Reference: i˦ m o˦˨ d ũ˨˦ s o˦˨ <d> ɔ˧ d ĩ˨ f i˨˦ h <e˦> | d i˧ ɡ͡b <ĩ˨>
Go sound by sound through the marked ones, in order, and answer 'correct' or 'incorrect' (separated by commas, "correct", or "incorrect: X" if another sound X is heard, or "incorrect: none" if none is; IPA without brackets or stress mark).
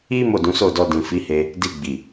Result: correct, incorrect: e˧, incorrect: i˨